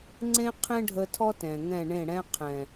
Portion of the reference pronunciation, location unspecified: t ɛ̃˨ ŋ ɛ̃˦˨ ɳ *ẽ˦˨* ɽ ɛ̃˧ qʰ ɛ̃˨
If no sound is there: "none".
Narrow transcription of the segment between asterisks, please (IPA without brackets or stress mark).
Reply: ẽ˦˨